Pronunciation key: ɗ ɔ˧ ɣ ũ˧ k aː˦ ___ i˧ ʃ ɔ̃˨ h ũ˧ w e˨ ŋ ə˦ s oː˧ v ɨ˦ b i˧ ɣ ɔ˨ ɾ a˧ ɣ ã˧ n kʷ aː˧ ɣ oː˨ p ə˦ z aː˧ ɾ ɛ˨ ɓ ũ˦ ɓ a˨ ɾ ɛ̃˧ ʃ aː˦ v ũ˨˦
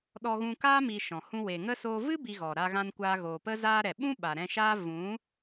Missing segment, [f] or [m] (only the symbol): m